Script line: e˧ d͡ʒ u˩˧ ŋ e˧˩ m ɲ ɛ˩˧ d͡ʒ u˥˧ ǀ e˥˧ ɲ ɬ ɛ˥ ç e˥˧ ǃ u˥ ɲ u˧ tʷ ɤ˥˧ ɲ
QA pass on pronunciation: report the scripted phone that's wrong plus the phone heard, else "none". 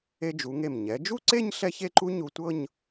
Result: none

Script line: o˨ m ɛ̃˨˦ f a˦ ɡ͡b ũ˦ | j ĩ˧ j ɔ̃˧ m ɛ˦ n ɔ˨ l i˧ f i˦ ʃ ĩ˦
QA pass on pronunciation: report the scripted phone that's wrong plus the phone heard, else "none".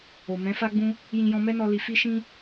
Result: ɔ˨ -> ɔ˧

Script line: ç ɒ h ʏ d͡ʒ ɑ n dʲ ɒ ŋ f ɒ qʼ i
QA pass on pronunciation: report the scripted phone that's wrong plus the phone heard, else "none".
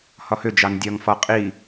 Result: ç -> h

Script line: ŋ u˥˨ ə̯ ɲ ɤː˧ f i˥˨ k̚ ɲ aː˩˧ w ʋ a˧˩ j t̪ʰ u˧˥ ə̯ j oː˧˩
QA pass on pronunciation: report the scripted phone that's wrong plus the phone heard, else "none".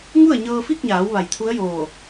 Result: none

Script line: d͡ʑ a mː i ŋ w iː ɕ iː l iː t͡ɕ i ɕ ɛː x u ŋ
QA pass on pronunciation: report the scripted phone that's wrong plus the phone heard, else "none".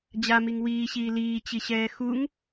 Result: mː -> m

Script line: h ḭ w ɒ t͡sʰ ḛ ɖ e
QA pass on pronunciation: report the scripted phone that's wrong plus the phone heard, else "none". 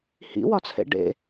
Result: e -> ḛ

